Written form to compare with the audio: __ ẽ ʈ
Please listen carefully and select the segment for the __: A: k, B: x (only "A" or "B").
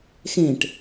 B